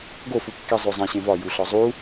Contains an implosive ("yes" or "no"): no